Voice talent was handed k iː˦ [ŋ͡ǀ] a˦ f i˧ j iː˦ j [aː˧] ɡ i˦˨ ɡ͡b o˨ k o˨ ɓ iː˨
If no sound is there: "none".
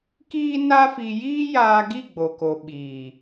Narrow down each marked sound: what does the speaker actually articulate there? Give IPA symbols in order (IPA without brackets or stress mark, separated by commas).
n, aː˧